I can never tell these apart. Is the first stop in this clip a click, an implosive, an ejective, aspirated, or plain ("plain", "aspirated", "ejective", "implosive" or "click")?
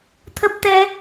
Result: aspirated